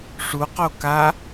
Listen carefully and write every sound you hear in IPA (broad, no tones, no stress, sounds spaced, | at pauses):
ʂ u q o k a